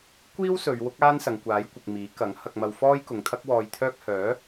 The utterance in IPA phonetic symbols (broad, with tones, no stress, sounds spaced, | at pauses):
kʷ iː˥ w s ɵ˨˧ ɥ w ʊ˥ k̚ aː˥ n s ɐ˨ ŋ kʷ aː˨˥ j kʷ ɪ˨ k̚ m iː˨˥ k ɐ˨˥ ŋ h ɐ˧ k̚ m ɐ˧ w f ɔː˥ j k ʊ˨˧ ŋ t̪ʰ ɐ˥ k̚ w ɔː˧ j t̪ʰ œː˥ k̚ h œː˨˥